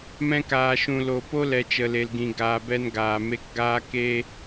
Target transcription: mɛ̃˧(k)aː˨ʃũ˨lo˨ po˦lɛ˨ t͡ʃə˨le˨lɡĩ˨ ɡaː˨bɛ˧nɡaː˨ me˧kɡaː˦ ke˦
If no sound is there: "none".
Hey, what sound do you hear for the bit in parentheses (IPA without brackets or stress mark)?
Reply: k